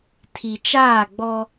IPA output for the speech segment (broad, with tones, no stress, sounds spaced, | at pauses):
tʰ i˨ t͡ʃ aː˦˨ ɡ͡b ɔ˦